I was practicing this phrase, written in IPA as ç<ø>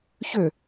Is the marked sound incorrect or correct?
correct